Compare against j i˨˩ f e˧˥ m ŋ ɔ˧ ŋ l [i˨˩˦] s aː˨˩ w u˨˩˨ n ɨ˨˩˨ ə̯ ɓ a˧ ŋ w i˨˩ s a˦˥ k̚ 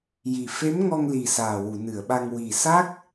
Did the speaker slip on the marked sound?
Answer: yes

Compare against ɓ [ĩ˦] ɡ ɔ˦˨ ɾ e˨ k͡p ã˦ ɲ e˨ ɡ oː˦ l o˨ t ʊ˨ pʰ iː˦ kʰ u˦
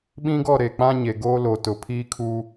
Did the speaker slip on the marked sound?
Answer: no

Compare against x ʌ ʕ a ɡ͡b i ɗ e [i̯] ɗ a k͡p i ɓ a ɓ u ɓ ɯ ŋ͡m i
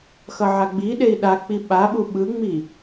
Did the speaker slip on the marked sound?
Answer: no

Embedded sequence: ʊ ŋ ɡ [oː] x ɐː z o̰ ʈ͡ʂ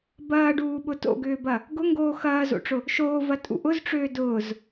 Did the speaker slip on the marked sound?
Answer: no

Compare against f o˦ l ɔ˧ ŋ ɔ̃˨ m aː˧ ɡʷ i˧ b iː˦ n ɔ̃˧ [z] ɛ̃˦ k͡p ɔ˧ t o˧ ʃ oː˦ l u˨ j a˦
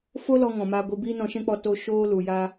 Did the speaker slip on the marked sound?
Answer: yes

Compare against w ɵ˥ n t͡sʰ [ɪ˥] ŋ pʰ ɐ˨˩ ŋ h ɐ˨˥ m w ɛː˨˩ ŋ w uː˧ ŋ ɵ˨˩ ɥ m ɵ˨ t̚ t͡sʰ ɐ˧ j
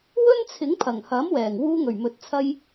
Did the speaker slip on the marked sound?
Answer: yes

